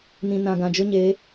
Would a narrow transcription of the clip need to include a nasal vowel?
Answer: yes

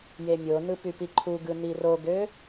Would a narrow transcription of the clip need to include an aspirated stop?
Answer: yes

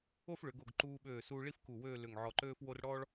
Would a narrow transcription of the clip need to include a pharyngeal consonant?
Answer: yes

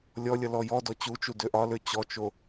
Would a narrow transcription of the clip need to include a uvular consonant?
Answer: no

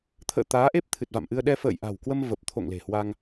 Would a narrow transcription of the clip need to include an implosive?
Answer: yes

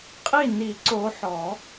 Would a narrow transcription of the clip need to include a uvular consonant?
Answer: yes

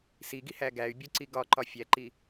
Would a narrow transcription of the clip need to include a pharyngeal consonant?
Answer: no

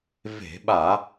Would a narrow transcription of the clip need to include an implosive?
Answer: yes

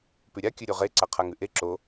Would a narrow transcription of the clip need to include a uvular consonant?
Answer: yes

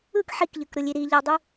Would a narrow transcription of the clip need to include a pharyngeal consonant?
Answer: yes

